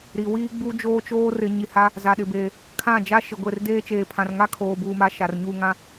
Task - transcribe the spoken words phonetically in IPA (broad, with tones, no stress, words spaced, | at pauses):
ɾi˨ wiː˦ɡ͡bu˦ d͡ʒoː˦t͡ʃoː˦ rɪ˨˦ɲi˨ha˦ | za˨ɗɪ˨beː˨ | kʰã˦˨ d͡ʒa˦ʃɪ˨ɡʷe˦˨rdeː˦ t͡ʃeː˨pʰã˨rŋa˦ kʰoː˨buː˨ma˨ ʃa˨rɲu˦˨ŋã˦